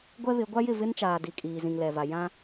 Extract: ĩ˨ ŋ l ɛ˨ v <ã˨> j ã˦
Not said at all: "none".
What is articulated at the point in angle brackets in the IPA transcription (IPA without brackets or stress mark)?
a˨